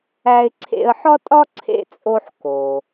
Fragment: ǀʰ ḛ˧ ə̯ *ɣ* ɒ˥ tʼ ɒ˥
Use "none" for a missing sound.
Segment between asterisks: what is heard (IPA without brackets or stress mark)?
ħ